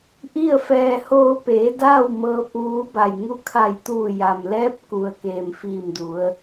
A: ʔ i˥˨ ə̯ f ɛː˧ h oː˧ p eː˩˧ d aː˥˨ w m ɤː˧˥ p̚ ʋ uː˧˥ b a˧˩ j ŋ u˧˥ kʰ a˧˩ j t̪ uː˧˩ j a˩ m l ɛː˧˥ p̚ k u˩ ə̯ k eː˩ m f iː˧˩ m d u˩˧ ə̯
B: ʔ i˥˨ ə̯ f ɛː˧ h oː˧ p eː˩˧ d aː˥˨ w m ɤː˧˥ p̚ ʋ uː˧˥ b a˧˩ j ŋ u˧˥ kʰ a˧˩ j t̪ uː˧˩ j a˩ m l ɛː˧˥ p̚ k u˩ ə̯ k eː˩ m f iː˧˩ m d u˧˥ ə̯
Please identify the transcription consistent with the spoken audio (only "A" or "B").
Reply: A